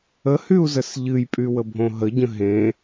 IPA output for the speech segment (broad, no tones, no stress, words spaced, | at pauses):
əhyu̯zəs ʎɨjpʼywəbʱõ ɦəɟə̃ ɦẽ